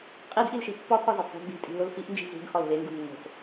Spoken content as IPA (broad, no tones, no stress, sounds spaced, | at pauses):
qʼ i d ʔ i l ʃ i pː ɒ t̪ʰ ɒ z e d sˤ o̤ d d̪ i̤ tʼ i̤ l o l f i ʔ n d͡ʒ i̤ z ṳ d x ɒ l v e ŋ ɡ u nː o̤ f